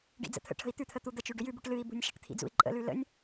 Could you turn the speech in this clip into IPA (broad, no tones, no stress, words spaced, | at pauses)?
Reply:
ɖḭd͡zə̰t̪ʰə̰ʈʰə̤i̯ t̪ʉt̪ʰə t̪ud̪ət͡ʃʉ ɖʏjʉbuʈ lɨi̯bṳnʲ ʃə̤ʈ t̪ʰḭd͡zṵi̯ǃʼə̰lʉ lə̰nʲ